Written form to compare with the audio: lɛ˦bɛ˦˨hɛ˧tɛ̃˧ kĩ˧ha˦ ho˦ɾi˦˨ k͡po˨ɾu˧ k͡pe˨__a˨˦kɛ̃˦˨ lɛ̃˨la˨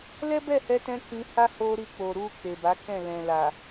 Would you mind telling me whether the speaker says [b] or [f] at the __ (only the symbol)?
b